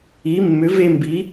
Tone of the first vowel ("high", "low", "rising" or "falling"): rising